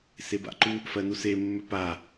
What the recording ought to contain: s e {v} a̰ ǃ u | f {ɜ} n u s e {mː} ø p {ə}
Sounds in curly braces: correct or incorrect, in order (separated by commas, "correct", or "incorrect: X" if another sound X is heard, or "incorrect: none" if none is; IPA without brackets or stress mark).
incorrect: b, correct, correct, incorrect: a